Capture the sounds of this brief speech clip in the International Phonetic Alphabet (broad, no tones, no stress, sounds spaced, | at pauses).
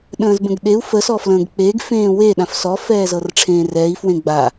ɗ ə̃ː z b ə̃ ɡ ɗ e u̯ f ə s ɔ f l ə̃ː ɡ k͡p e ɡ f ẽː w e ɗ ã f s ɔ f ɛː z ɤ r ʈ͡ʂʰ ẽː r ɛː i̯ f w ẽ ɡ͡b a